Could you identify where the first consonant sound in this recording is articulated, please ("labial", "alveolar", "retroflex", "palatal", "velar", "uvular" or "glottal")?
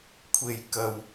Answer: velar